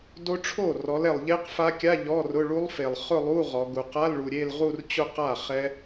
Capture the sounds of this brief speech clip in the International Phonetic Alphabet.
d o˦˥ ʈ͡ʂʰ o˥˩ r ɔ˨˦ l ɛ˨ lˠ ʎ e˦˥ q f a˦˥ kʲ a˧˥˧ ʎ ɔ˧˥˧ r ʊ˧˥˧ ɭ u˦˥ lˠ f e˨ lˠ χ ʊ˥˧ lˠ u˧˥˧ ʁ ɔ˨˦ ɡ u˨˦ q a˧˥˧ l ɭ u˨ ɾʲ e˥˧ l ʁ u˥˧ r t͡ɕ ʊ˥˧ q a˥˩ χ ɛ˦˥

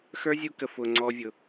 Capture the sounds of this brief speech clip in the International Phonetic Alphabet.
x ə˞˦ zʲ u˧ k ə˨ f ʊ˨ ŋ͡ǀ ɔ˧ vʲ ʊ˨

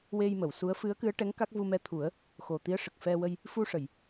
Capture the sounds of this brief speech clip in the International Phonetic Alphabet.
w e˧ j m ə˨˩˨ w s u˧˥ ə̯ f ɨ˧˥ ə̯ k ɨ˧˥ ə̯ ʈ ɛ˧˥ ŋ k a˦˥ k̚ v u˧ m ɛ˧ t̪ʰ u˨˩˦ ə̯ | x o˨˩ t̪ i˧˥ ə̯ ʂ ə˨˩ k̚ f ɛ˧ w ə˧ j | f u˧ ʂ ə˨˩˨ j

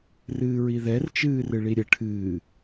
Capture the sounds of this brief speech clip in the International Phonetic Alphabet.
r ɨː ɹ i ð ɛ r t͡ʃ ɨː r ɨ ɭ i ɾʲ ə ʈʰ ɨː

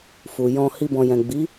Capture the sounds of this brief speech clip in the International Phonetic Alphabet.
f u˨ j ɔ̃˧ h i˧ b ɔ̃˨ j ɛ̃˨ ɡ͡b i˨˦

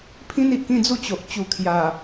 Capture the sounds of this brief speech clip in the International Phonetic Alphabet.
pʰ ĩ˦ n i˨ ʔ k ĩ˥˧ d͡z u˥˧ t͡ɕ o˨ ʔ t͡ɕ u˨˩ kʰ j a˨˩

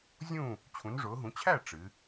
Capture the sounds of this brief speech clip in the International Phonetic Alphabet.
zʲ ũ˥˩ | t͡ɕʰ ũ˩˧ n ʐ ʊː˩˧ ɦ ũ˩˧ t͡ɕʰ æ˥˩ ʈ͡ʂ ɨ˩˧

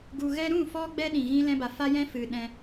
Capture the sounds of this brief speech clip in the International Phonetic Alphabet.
ɡ u˧ ɣ ɛ˦ ɾ ũ˦˨ f ɔ˧ ɡ͡b ɛ˧ ɗ ĩ˨ ɣ ĩ˧ l ɛ̃˧ b a˨ f a˦ j ɛ̃˦ f ɨ˨ ɗ ɛ̃˧

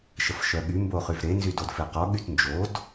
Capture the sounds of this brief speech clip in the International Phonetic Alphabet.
ʃ ə f ʃ œ ɠ y m b o χ y v ɾ e n z y d o d f e q ɔ ɠ y t n d͡ʒ o d

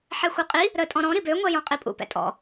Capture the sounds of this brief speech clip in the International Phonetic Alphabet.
ħ ɛ xʷ œ qʼ i | ɾ ə tʼ ɔ̃ ɾ ɔ̃ ɾ i b ø ŋʷ ɛ j ɔ̃ qʼ i pʼ ṵ p ɛ̰ tʼ ɔ̰

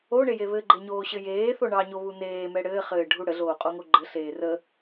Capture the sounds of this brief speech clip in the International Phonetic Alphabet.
o ɳ e j e β ɘ ɡ͡ǃ e ɲ oː ɕ ɘ j eː θ o ɳ ɑ ɲ o β u n eː m ɛ ɽ ɘː χ ɘː ɖʱ u ɽ ə ɮ oː qʼ o ŋ o ɡ͡ǃ ɘ ɬ eː r ə

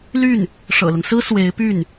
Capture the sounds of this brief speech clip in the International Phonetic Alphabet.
l y˥˩ n | ʂ ɤ̰˨˩ l ʊ˦ ŋ s ɹ̩˥ s w e˧˥ ɪ̯ p y˥˩ n

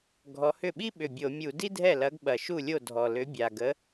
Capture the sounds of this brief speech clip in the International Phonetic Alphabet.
ɡʱ ɔ˨˥ h ʏ˥˩ ɓ i˥ ɓ ʏ˨˩ bʲ o˧˩˧ mʲ u˧˩˧ d i˥ dʱ ɛ˥˩ l ɐ˨˥ ɡ ɓ ɐ˨˩ ʃ u˥˩ lʲ o˥˩ dʱ ɔ˨˩ l ʏ˨˥ bʲ a˨˩ ɡ ə˨˥

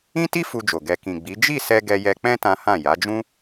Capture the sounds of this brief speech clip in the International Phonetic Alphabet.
ĩ˦ t i˦ f u˧ d͡ʒ o˨ ɡ ɛ˨ k ĩ˨ ɡ͡b i˨˦ d͡ʒ i˦˨ s ɛ˧ ɡ ɛ˧ j ɛ˧ k͡p ɛ̃˦ t ã˦ h ã˦˨ j a˨˦ d͡ʒ ũ˦

